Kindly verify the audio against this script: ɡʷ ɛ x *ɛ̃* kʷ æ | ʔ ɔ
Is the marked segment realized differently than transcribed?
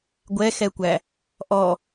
yes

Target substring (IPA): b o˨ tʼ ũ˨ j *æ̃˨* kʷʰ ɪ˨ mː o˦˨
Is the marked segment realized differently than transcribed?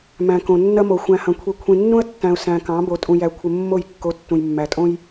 yes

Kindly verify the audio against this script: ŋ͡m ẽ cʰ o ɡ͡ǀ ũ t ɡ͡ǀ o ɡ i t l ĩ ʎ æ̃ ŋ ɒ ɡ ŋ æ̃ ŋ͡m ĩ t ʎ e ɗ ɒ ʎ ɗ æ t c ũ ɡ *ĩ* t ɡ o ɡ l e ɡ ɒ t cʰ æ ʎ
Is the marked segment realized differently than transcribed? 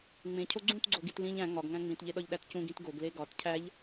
no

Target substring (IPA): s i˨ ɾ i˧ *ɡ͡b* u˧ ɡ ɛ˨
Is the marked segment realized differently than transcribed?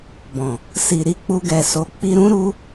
yes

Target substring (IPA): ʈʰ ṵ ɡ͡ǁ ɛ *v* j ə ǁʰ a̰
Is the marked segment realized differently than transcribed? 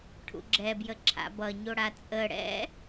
yes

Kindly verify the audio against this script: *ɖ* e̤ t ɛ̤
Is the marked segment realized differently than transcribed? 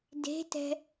yes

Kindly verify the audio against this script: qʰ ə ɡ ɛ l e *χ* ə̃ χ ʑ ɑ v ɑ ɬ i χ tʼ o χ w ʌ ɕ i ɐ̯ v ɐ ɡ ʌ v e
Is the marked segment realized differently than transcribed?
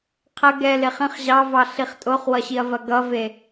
no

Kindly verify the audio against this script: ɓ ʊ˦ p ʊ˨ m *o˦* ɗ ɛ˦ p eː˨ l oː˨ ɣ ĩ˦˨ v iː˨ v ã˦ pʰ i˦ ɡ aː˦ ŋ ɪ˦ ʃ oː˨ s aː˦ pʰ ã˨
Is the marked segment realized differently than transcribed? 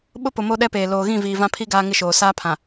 no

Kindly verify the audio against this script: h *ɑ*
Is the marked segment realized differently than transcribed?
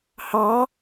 no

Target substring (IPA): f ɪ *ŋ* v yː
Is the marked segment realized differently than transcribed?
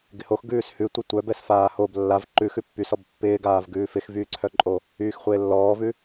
yes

